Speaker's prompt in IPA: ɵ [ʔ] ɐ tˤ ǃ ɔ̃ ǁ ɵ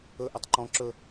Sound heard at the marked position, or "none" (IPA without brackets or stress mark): ʔ